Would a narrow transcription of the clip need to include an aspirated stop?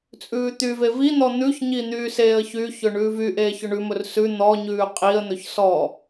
no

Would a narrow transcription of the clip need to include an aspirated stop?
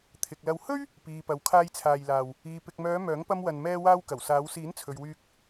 yes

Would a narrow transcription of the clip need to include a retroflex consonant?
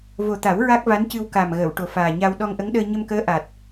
yes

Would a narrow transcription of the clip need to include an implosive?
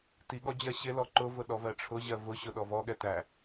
yes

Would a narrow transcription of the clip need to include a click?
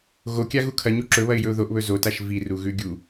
yes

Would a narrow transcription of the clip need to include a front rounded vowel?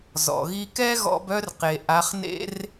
yes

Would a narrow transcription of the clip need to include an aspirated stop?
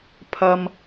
yes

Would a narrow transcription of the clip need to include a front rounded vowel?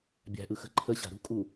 no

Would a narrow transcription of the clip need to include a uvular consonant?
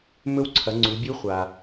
yes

